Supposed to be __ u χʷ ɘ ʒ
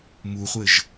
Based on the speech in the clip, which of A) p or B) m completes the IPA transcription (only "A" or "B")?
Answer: B